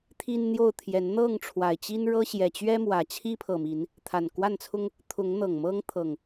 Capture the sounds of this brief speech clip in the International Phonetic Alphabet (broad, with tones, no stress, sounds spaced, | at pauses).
t̪ʰ i˦ n n̪ j o˥˨ ʊ̯ t̪ʰ j ɛ˨˦ n n̪ ɤ˥˨ ŋ ʈ͡ʂʰ w a˨˩ ɪ̯ t͡ɕ i˦ n ɻ ɤ˦ ɕ j ɛ˨˩ t͡ɕ ɥ ɛ˦ m w ä˨˩ t͡ɕʰ i˦ pʰ ɤ˨˩ m i˨˦ n | t̪ʰ a˨˩ n k w a˥˨ n t͡sʰ ʊ˦ ŋ | t̪ʰ ʊ˨˦ ŋ n̪ ɤ˨˩ ŋ m ɤ˦ ŋ t̪ʰ ɤ˨˩ ŋ